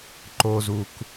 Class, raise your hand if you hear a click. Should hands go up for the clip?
yes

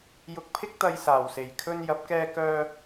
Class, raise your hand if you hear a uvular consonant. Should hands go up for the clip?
no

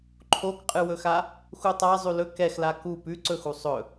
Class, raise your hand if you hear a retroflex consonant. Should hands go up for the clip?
no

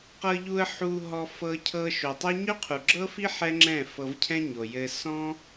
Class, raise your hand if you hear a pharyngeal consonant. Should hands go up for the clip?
yes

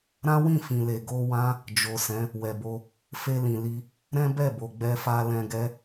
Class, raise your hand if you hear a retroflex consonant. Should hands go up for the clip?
no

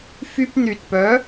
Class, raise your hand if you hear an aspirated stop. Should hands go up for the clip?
no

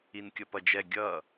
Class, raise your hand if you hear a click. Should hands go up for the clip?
no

